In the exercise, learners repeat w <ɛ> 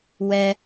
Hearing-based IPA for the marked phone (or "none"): ɛ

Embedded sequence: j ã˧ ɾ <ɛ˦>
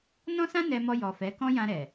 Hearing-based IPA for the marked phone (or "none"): ɛ˨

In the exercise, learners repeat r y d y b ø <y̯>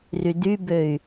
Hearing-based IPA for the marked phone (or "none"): y̯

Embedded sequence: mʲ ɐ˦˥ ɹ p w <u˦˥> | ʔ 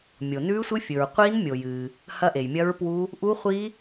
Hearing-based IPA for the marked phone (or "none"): u˦˥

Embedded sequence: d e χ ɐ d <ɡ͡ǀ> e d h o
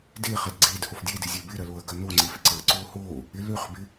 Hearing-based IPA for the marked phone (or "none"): ɡ͡ǀ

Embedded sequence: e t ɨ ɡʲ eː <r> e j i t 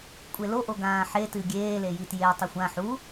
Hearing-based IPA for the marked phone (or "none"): l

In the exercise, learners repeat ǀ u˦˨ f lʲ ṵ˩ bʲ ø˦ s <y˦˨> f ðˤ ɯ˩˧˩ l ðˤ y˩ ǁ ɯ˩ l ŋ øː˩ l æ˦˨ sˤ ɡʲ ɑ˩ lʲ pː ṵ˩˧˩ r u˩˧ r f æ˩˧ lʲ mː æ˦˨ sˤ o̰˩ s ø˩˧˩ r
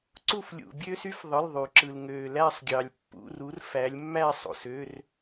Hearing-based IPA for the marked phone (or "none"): y˦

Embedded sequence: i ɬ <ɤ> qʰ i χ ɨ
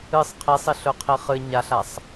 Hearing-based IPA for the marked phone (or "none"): ɵ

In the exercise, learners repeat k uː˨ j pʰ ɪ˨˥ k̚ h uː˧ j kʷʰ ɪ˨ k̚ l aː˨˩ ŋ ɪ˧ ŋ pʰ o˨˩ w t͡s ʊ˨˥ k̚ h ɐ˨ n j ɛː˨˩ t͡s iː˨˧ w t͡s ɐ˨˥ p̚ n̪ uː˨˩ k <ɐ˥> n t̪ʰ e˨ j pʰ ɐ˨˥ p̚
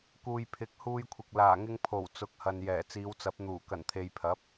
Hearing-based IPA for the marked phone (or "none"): ɐ˨˩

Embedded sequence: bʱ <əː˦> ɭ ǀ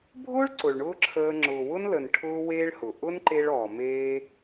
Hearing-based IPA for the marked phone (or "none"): ʊː˦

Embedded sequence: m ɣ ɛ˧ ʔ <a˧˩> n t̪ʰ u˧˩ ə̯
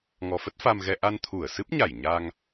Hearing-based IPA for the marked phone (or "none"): a˧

